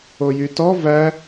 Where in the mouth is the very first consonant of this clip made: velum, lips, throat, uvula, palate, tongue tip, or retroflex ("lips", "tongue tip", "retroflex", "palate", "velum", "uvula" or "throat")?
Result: palate